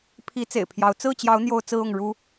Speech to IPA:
pʰi˨˦ t͡sḛ˨˩ɪ̯pʰjɑ˨˦ʊ̯ t͡sɹ̩˥˨t͡ɕjɑ˨˦ʊ̯ n̪jo˦ʊ̯t͡sɹ̩˦ʊ˥˨ŋ ɻu˦

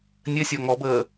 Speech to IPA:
nʲɘsʲɒ ŋɔbəː

